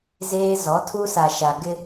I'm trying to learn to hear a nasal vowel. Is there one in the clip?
no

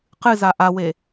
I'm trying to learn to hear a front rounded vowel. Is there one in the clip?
no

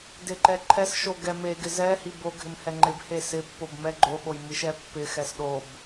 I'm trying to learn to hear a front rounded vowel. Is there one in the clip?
no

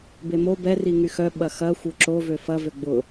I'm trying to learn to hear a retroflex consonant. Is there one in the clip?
no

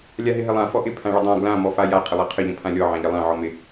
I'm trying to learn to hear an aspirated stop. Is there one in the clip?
yes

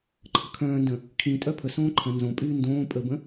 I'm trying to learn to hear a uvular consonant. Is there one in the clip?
no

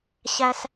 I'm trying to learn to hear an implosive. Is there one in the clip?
no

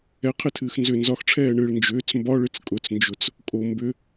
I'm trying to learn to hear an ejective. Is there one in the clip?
yes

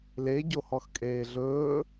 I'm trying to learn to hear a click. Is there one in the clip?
no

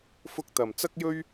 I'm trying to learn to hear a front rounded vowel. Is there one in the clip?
no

